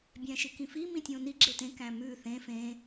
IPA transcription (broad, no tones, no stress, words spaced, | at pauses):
bʲæ̃ʃikĩfi mĩtʲõni ɡ͡ǁetẽ kæ̃mʉ θẽ fẽ